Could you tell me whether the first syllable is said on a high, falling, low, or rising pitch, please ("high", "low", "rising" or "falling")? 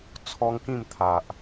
high